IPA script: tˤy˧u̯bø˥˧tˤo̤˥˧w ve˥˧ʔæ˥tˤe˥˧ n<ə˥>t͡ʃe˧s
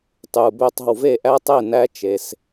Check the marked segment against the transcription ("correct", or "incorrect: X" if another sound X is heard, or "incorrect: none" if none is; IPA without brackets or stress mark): incorrect: æ˥